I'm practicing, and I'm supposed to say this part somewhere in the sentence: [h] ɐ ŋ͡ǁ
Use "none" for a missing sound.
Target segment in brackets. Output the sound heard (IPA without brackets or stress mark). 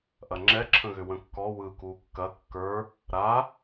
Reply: ʔ